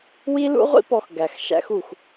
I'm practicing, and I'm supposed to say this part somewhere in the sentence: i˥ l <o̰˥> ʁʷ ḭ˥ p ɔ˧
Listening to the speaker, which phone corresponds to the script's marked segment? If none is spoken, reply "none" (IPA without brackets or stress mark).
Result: ṵ˥